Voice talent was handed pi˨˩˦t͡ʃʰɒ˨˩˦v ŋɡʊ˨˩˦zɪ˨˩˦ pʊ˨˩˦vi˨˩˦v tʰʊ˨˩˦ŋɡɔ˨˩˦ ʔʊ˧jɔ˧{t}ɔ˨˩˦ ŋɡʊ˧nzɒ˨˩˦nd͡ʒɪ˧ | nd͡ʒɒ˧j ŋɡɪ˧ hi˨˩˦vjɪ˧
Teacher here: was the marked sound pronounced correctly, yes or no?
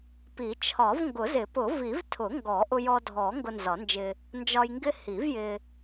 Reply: no